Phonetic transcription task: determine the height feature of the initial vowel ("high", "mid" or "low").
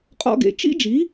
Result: mid